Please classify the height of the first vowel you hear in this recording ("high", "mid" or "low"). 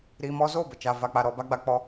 high